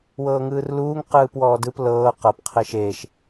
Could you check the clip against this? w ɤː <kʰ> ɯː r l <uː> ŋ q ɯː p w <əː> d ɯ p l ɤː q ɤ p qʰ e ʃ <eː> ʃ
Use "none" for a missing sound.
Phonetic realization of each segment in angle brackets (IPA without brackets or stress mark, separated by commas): ŋ, uː, ɔː, eː